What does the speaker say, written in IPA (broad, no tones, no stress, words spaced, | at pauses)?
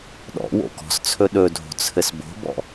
ɗɔ̰ wo̰kɔ̤st͡sʰɵ ɗɵdʱo̤ t͡sʰɘsbo̤bɔ̰